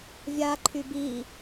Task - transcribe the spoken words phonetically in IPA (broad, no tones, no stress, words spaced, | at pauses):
vʲa ǃʰybi